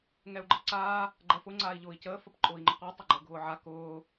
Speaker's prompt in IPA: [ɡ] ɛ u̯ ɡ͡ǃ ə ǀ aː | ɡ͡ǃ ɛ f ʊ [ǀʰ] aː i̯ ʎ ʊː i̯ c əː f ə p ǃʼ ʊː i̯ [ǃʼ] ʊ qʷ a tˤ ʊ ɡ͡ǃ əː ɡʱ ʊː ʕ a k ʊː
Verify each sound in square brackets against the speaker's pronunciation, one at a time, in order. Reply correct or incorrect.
incorrect: ŋ, incorrect: ŋ͡ǀ, incorrect: ŋ͡ǃ

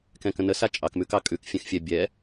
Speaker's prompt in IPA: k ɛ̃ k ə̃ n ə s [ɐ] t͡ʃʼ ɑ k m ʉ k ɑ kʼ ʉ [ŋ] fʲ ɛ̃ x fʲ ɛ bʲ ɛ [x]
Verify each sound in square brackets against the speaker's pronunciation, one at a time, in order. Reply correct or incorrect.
incorrect: a, incorrect: k, incorrect: none

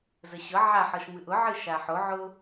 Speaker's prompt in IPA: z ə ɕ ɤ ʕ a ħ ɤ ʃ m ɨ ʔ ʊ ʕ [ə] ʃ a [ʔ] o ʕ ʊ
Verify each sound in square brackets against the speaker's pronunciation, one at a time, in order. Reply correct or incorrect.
incorrect: ɨ, incorrect: ħ

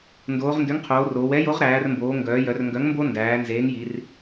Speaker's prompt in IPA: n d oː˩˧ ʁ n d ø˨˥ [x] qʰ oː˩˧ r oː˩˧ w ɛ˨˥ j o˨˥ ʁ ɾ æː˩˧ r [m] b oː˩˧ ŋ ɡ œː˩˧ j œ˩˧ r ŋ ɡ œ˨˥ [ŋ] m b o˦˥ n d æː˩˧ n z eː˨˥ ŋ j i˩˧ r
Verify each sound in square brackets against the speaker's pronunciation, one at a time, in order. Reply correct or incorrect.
incorrect: ŋ, correct, correct

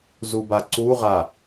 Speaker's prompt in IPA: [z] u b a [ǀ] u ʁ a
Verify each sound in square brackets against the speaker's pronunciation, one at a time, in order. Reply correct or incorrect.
correct, correct

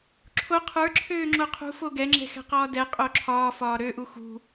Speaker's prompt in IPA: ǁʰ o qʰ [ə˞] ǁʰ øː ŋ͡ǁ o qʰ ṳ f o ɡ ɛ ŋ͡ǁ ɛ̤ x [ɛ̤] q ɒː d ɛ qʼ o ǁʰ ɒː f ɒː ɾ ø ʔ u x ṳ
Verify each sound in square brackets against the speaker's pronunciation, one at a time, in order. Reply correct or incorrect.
correct, correct

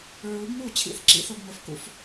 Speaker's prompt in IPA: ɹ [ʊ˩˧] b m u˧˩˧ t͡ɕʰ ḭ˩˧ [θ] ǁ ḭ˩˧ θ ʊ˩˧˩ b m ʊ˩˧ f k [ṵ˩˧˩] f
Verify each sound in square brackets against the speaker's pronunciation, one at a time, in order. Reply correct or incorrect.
incorrect: u˩˧, correct, correct

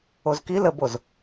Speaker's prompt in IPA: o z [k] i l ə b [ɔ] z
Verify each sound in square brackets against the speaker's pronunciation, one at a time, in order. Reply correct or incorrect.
correct, incorrect: o

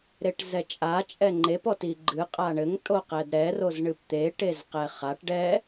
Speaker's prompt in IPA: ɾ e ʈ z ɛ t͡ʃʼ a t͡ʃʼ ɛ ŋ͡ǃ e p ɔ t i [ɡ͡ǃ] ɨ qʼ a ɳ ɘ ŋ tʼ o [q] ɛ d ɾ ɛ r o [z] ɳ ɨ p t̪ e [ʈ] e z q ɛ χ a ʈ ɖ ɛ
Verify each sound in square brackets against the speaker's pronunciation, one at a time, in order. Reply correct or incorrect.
correct, correct, correct, correct

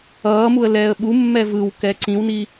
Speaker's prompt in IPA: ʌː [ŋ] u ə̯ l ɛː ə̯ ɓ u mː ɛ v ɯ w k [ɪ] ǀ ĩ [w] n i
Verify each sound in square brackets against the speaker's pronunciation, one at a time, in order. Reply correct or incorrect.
incorrect: m, incorrect: ɛ, correct

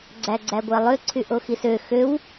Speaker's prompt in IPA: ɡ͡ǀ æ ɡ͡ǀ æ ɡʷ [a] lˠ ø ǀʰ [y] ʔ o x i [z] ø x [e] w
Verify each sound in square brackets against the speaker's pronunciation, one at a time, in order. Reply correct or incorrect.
incorrect: æ, correct, incorrect: s, incorrect: ø

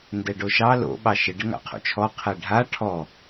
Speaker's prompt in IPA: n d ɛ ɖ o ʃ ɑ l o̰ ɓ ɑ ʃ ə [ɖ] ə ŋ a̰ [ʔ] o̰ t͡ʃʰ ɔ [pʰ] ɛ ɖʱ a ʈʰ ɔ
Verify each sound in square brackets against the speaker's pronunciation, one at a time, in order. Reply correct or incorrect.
correct, incorrect: qʰ, incorrect: qʰ

